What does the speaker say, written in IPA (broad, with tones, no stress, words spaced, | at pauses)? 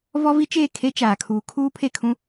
vɔ˦vi˦t͡ʃeː˦˨ kʰe˦t͡ʃaː˨ kʰuː˨ kʰuː˦ pʰe˦˨kʰũ˦